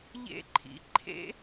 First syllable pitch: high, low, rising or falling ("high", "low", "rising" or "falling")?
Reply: high